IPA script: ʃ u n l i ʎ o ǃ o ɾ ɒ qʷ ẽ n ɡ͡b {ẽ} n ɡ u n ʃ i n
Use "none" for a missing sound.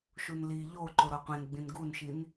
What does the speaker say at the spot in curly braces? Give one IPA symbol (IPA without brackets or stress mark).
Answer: ĩ